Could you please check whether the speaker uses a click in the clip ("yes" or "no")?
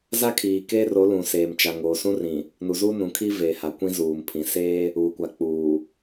no